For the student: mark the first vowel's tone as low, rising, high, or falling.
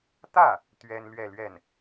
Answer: falling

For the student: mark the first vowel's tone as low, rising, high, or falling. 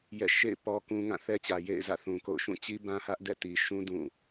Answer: falling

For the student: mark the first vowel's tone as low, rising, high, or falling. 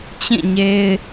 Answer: falling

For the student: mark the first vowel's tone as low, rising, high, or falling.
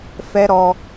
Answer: high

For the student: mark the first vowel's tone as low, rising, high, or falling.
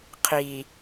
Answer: low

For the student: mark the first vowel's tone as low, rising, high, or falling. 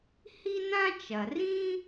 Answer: high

